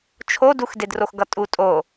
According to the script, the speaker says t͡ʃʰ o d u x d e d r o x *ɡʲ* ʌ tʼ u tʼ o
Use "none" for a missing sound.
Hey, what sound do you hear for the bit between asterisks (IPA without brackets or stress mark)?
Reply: ɡ